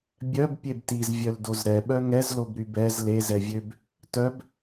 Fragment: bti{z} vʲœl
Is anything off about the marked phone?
no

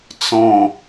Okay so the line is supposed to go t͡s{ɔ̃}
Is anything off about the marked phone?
no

